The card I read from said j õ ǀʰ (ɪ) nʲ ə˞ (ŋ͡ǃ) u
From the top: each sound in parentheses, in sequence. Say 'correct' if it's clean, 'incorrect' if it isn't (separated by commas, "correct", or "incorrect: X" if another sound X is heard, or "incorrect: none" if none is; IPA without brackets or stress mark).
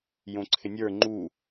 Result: correct, correct